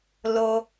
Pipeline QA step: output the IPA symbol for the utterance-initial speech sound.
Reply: l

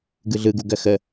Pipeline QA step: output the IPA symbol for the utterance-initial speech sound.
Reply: ɡ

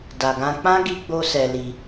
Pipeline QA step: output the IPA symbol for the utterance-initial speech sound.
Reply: d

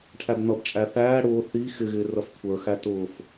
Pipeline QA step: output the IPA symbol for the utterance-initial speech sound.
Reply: ʈʰ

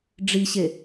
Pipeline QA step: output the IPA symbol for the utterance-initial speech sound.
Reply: ɖ͡ʐ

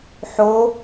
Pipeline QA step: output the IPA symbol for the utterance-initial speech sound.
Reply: ħ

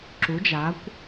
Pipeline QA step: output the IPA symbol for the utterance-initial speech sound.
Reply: ǁ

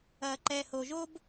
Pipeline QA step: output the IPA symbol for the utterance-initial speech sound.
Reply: ɐː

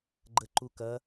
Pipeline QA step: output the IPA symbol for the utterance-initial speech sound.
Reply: ɡ͡ǃ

